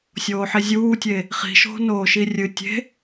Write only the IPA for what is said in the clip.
sʲ oː ħ i zʲ uː tʲ e | χ i̤ ʃ o̤ n oː ʃ i rʲ ɨ tʲ e̤

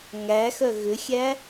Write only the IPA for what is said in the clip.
ŋ æ x œ ɣ ʏ xʲ æ

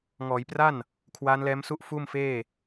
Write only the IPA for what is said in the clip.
ŋ ɔː˩˦ j p r a˥˩ n | kʰ w aː˦˥ n l ɛː˦˥ m s u˥˩ ʔ f uː˥˩ m f eː˥˩

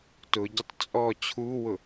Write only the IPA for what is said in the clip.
t ʊ ɟ ʊ tˤ t͡sʼ ɔ t͡ɕʰ u w ʊ

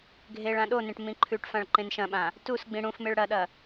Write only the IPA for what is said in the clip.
ɡʱ e ɭ ã ɗ o n ẽ ʈ m ĩ ǃʰ ʉ ʈ f ã ɭ ǃ ẽ n ʃ ɐ̃ ɓ ã | t u s ɡ͡b ĩ ɽ ũ f m e ɭ ɽ ɐ ɗ ɐ

